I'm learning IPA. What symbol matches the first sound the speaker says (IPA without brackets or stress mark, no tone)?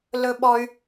l